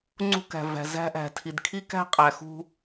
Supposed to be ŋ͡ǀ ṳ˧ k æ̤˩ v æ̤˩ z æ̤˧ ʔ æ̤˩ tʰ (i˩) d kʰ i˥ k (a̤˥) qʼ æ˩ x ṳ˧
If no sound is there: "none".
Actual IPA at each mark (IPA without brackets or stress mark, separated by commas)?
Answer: i˩, æ̤˥